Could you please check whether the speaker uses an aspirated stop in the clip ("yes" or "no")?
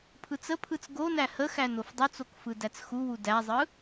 yes